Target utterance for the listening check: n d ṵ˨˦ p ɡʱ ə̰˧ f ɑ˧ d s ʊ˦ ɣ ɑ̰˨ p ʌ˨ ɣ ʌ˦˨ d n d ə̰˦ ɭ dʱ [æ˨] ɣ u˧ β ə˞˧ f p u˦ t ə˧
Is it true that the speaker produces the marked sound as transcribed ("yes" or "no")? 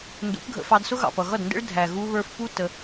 yes